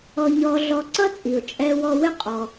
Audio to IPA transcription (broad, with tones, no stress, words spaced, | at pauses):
ɔ˧ɲɔ˧ɮɔ˧ ǀʌ˥t͡sʼi˩ʊ̯ t͡ʃʼɛ˧wɔ˧wɪ˥ qʼɔ˩